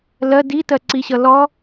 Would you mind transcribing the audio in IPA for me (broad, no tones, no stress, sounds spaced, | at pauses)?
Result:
l ɜ d i t ɜ ǀ i ɕ ʌ l ɔ